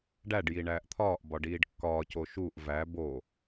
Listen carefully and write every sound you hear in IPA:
ɖæɖji ɳæːʔt̪ʰɒːʔbɒ ɖiːɖkːɒːco ʃuʔ væ bo

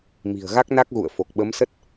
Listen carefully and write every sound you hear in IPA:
mi̤˨˩ə̯ɣa˦˥k̚na˦˥k̚ɣṵ˧˨ə̯ fo˨˩k̚ɓə˨˦msə˦˥t̚

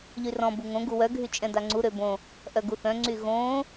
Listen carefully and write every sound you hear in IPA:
ʎyrɔ̃ buŋõ ɡuwœ ɡʱyt͡ʃʼɛ̃daŋ͡ǀu ɾøbõ | ʔœɡuθœ̃ ŋ͡ǀyɣõː

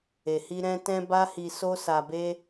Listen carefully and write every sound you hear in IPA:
e˨hi˧ ɾɛ̃˧tɛ̃˧ ba˦hi˧ so˧sa˨be˧

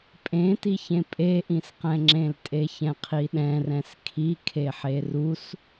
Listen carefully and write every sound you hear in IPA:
pʼẽtiçẽ pʼeʔĩsqɛ̃ŋ͡ǁẽl tʼeçɛ̃qʰiɗɛ̃ rɛ̃skʰi kʰeħerus

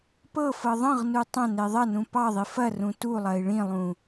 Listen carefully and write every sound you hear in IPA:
pɤfɤ ðˤɐ̃ʁnu tˤɐ̃ neðˤɐnũ pɑðˤi fɐ rũtulˠɐi̯ ɭĩlˠũ

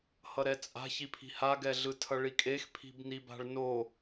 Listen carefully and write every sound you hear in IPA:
hʌɾɛt͡sʼa̤çi pʰi̤haɡɛɮɯ tʰʌɭikʼex pʰi̤bniba̤ɭno

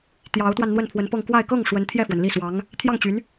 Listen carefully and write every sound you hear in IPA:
t̪jɑ˧˥ʊ̯t̪wa˧n n̪wə˥˩npʰwə˧˥npɤ˥˧ŋ kwa˥˧ɪ̯ kɤ˥˩ŋ ʂwə˧˥nt̪ʰjɛ˥˩fwə˩n li˥˩swɑ˧˥ŋ | t̪ʰjɑ˥˩ŋt͡ɕy˧˥n

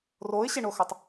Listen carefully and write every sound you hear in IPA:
roɪ̯ɕeɳoxɐtˤ

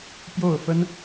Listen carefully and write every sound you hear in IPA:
pjo˥˩ʊ̯fə˥n

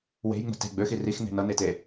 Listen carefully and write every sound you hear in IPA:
we̤j ŋ͡mə̤te̤ ɡ͡bøxi rixn̪e̤ nʌnete

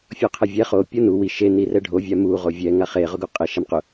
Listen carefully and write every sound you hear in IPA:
fʲɔqʰɛvʲɛ χo pʲonu wiʃ e nirɛɖʱo vʲamu ʁovʲɛ ŋaχe ʁʊɡuqʼe ʃamqʊ

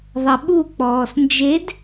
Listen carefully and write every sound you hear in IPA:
ðˤɛɓuk͡pɔːs nd͡ʒed

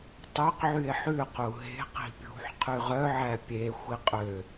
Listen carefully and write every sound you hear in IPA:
tˤøqʕye̯ ħʉqu ɦe̤ qi̤pʲṳħ qʰyʁœʕæ pʲe xʷiqʼø

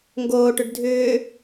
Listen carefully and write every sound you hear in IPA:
ŋɡoːʈʏɖ dʱʏː

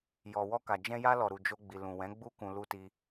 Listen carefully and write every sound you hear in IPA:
jɔ˨wɔ˧ka˨ d͡ʒɛ̃˧ja˧ lɔ˨ɾu˨d͡ʒo˧ ɡ͡bi˨ lũ˨wɛ̃˨˦ ɡ͡bu˦ kũ˧ lu˧ ti˧

